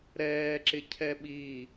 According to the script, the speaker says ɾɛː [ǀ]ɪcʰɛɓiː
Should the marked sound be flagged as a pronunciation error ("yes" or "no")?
yes